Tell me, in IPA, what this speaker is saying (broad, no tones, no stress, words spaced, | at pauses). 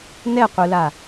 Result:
nɛqʷɯla